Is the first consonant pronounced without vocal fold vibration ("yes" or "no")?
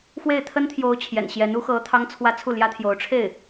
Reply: yes